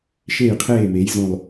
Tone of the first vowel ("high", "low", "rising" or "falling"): falling